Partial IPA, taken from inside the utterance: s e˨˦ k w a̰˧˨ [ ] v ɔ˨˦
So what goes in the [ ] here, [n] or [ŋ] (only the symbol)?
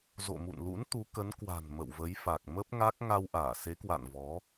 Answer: n